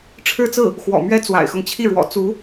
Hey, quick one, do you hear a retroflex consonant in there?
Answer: yes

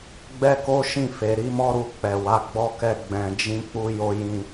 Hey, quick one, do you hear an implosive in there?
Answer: no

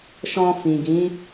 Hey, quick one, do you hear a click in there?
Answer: no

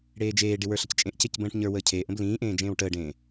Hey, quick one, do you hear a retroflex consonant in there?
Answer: yes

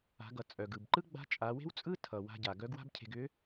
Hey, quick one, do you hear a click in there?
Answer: yes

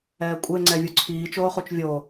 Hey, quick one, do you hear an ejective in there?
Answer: yes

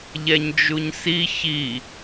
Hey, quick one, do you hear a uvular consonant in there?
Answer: no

